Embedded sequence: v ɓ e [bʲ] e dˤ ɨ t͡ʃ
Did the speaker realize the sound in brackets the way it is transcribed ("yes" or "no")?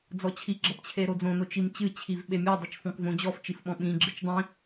no